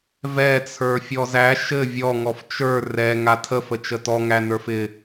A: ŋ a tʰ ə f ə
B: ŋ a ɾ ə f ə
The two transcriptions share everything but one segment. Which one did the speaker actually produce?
A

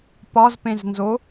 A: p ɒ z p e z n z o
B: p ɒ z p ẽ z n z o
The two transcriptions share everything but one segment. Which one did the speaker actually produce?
B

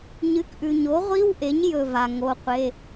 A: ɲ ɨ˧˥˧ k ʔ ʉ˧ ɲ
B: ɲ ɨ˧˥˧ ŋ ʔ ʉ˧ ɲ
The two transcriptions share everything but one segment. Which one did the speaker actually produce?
A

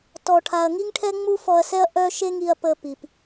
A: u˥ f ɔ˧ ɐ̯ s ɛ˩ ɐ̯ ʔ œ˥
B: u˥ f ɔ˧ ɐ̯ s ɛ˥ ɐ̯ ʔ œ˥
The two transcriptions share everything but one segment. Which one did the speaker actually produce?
B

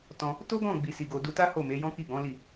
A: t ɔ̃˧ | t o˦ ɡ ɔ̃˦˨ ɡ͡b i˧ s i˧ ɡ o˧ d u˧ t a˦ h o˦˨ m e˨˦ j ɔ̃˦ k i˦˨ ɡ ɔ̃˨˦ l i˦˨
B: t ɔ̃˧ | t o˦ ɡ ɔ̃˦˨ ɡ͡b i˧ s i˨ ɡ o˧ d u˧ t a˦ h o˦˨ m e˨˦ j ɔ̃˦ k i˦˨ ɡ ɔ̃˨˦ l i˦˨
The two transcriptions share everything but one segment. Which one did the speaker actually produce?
A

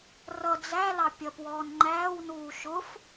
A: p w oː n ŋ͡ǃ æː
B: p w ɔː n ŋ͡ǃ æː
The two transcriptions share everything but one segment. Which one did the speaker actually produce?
B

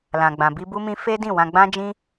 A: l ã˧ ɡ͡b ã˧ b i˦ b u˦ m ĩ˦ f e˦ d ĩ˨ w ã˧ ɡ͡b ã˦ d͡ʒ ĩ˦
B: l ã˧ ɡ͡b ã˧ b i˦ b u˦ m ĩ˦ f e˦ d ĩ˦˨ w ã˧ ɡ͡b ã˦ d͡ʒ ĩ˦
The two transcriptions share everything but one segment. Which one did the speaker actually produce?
B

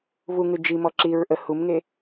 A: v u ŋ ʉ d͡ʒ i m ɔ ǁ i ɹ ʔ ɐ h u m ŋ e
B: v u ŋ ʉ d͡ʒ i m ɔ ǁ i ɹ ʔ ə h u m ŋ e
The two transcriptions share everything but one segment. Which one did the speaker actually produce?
B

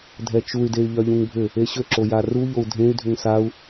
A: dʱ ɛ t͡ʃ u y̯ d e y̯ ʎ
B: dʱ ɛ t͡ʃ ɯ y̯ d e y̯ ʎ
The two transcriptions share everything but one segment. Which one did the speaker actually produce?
A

